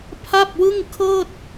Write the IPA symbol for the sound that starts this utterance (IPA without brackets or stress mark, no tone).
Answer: pʰ